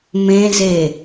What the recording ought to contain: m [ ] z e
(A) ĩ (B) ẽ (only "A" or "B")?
B